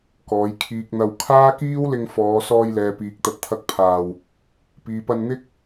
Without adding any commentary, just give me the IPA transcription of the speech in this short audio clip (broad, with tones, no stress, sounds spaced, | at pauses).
k ɔː˨˧ j kʰ iː˨ k̚ n̪ ɐ˧ w kʰ aː˥ k iː˥ w l ɪ˧ ŋ f ɔː˨˧ s ɔː˧ j l ɛː˨ p iː˨ k̚ t̪ ɐ˨ t̚ t̪ʰ ɐ˨˥ k̚ pʰ aː˨˩ w | p iː˨ p ɐ˧ n n̪ ɪ˥ k̚